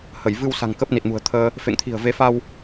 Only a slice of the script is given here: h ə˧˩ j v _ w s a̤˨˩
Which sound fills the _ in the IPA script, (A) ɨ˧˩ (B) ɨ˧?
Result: B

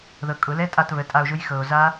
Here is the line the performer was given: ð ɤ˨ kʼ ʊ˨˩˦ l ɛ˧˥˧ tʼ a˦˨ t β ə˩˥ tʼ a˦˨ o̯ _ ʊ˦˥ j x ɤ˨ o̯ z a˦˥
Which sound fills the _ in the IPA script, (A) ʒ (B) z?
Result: A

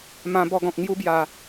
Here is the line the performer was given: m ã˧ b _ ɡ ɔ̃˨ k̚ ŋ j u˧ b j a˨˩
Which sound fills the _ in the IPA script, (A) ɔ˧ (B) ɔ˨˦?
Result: A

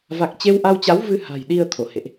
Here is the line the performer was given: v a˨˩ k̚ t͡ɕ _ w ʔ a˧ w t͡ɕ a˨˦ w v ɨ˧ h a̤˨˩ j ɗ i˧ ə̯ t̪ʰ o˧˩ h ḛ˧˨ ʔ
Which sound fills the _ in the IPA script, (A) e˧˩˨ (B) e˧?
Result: B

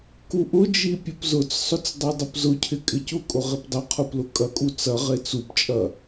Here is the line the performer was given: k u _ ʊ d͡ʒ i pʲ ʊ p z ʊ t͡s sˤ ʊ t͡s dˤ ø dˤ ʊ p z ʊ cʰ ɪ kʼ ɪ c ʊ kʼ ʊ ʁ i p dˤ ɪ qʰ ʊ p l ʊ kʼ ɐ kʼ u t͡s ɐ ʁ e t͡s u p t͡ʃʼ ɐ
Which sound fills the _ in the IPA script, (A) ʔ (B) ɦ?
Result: A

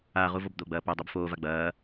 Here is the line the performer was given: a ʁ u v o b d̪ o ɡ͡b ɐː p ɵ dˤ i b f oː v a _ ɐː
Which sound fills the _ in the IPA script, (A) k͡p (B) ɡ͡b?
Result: B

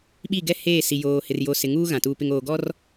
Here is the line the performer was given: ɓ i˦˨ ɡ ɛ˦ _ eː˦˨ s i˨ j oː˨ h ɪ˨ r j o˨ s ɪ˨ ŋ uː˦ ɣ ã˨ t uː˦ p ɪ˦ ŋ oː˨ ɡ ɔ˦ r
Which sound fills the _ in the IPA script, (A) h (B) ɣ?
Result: A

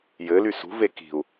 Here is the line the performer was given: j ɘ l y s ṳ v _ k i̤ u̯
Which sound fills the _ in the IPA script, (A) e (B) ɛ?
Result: A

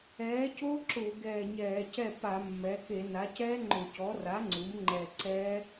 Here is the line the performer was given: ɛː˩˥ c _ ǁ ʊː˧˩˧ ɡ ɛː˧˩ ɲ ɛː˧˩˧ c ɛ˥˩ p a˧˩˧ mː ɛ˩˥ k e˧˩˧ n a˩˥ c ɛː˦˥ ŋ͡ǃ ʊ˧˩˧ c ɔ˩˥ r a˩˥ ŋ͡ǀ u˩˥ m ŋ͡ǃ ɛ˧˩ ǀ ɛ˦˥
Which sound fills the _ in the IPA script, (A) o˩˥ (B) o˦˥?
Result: B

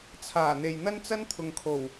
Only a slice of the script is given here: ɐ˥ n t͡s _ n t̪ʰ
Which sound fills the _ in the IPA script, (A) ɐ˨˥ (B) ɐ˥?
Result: B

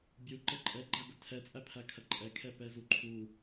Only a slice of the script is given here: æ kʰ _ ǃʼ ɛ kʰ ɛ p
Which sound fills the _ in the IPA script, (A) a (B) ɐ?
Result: B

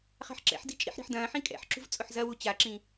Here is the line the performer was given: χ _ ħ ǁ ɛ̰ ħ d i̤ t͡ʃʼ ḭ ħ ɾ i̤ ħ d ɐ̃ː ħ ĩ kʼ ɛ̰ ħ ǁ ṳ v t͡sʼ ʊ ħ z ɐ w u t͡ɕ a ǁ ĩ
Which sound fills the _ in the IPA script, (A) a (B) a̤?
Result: B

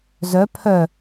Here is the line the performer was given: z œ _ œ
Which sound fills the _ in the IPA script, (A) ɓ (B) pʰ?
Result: B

